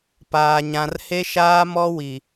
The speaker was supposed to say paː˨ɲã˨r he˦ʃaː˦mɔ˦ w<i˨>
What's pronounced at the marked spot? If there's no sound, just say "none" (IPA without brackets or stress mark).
i˨